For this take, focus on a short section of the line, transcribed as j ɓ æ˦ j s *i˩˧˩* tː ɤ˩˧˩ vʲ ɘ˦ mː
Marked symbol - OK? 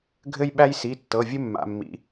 yes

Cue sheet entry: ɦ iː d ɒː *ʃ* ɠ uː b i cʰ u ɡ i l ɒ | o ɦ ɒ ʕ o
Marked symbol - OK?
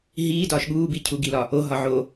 yes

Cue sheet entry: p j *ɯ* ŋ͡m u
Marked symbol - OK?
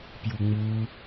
no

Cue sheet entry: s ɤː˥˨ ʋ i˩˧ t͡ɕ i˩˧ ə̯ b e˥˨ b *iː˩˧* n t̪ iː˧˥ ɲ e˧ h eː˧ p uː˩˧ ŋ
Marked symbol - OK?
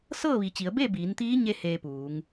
yes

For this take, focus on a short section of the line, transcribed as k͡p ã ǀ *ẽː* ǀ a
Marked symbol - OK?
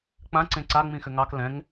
no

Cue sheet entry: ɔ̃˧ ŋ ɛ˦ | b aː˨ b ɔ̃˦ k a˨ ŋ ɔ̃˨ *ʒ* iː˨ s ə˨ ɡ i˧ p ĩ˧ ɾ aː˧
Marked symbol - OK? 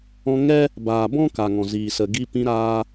no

